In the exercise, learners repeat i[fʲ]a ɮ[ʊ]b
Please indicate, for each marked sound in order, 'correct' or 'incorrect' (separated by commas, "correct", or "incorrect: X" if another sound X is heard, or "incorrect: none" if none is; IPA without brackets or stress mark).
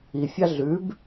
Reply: correct, incorrect: ʉ